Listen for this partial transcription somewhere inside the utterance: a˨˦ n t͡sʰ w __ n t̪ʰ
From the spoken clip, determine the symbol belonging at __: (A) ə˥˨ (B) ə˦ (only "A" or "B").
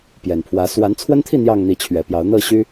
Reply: B